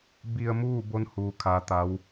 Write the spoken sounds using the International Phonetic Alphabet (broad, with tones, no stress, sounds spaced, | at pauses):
b i˧ ə̯ m uː˥˨ b o˧˥ n h uː˧˥ kʰ a˧˥ t̪ a˧˥ w